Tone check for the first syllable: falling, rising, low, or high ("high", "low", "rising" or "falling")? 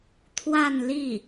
falling